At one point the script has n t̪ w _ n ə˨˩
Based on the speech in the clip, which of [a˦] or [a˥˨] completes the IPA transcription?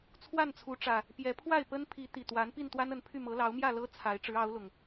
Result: a˦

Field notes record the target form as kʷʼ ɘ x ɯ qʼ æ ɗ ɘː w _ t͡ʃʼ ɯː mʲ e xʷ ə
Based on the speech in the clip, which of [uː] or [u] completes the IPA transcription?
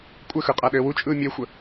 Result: u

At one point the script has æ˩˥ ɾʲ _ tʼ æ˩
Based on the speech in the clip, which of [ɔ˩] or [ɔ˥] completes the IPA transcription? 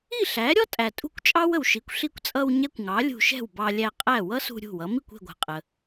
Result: ɔ˥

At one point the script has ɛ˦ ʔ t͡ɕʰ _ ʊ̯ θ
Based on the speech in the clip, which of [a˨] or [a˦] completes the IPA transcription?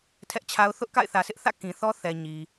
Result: a˦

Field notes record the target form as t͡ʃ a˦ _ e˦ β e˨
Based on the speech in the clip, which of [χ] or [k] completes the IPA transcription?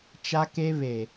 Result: k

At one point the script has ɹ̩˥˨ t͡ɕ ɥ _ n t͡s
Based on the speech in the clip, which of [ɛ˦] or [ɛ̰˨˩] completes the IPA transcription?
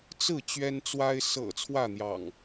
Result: ɛ˦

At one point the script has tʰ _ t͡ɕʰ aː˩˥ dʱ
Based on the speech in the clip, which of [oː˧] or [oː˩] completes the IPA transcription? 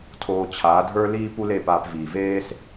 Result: oː˧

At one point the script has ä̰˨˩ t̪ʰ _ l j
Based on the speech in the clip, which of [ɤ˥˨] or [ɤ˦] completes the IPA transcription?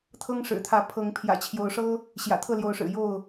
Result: ɤ˥˨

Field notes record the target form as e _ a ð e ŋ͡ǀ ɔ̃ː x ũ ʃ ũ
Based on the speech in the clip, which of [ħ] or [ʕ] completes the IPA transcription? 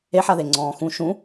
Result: ħ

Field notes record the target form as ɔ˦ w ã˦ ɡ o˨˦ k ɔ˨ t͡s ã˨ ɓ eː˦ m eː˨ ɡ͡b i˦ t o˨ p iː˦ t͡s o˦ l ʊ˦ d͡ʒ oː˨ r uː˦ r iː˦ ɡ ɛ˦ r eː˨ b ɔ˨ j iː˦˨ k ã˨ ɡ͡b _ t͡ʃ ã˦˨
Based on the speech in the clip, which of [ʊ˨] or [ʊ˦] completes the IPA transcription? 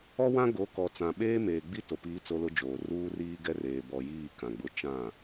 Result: ʊ˦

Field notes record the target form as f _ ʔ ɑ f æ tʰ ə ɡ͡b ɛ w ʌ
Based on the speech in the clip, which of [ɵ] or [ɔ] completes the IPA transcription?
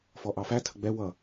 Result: ɔ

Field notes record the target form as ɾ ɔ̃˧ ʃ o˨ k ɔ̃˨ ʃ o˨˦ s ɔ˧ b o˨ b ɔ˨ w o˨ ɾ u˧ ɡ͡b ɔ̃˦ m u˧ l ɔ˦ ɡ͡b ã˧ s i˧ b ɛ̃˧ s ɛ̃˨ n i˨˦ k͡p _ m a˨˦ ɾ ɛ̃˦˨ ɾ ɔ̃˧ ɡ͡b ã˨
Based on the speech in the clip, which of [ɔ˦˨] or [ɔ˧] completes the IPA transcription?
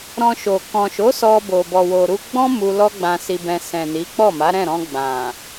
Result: ɔ˦˨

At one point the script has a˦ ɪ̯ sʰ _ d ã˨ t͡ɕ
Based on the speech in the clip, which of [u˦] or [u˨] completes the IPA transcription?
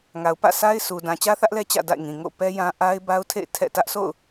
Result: u˨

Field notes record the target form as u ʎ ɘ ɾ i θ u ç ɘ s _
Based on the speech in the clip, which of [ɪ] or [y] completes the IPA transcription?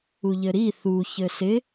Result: ɪ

